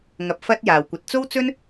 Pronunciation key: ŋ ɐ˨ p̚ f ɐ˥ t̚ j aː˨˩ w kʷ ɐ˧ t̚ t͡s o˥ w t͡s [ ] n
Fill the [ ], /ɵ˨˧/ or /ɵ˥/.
ɵ˥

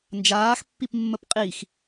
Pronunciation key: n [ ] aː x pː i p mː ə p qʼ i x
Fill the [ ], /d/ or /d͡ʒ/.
d͡ʒ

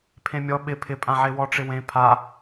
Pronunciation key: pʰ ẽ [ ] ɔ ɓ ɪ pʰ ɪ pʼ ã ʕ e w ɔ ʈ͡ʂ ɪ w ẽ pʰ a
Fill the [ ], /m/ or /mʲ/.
mʲ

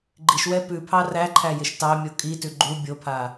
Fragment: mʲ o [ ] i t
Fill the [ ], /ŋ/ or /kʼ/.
kʼ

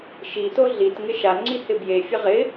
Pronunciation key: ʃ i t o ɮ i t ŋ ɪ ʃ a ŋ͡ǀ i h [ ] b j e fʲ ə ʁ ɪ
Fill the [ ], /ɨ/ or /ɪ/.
ɪ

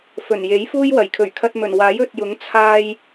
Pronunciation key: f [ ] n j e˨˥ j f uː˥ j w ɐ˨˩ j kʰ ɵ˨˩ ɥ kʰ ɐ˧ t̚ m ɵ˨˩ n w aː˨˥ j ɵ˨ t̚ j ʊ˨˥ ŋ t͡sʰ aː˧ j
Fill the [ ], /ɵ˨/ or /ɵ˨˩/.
ɵ˨˩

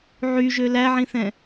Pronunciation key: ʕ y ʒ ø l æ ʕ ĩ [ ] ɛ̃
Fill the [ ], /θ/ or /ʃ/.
θ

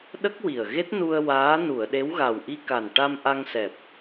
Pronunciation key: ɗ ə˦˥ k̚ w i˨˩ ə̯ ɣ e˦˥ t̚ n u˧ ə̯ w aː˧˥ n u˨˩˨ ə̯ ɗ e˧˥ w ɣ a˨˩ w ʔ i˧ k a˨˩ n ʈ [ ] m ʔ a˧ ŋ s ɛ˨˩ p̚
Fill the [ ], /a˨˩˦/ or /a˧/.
a˧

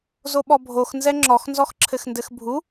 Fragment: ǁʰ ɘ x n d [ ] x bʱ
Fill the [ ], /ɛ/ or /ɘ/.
ɘ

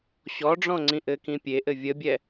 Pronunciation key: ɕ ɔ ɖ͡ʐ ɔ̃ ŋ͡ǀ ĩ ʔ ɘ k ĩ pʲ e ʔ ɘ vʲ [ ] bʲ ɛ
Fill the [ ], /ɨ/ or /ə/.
ə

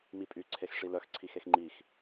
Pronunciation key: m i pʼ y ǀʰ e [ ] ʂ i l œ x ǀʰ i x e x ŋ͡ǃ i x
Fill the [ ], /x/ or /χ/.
x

